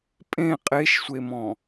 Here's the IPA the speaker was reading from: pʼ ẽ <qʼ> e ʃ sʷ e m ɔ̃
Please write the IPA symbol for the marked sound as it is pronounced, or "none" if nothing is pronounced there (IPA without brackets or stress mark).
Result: qʼ